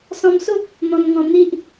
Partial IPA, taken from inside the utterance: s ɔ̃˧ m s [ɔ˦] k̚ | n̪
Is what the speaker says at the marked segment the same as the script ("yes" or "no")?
no